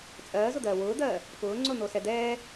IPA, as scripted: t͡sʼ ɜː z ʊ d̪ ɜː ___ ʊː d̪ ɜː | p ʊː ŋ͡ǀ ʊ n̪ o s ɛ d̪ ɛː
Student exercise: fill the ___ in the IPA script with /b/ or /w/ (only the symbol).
w